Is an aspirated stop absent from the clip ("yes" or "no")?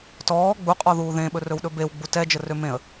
yes